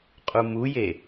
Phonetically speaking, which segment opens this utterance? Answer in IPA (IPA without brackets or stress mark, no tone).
qʼ